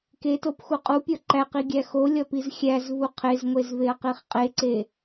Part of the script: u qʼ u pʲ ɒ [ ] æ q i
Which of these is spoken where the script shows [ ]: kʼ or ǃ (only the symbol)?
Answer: ǃ